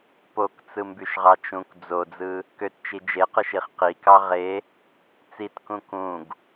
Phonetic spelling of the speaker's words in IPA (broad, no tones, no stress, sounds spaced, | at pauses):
p o k t͡s ɯ m b y ʃ ʁ ɑ t͡ʃ ũ k d͡z o d͡z ɯ | k ø t t͡ʃ i d͡ʒ e q ɯ ʃ i χ q i k ɑ ʁ e | t͡s i t k ũ k ũ ɡ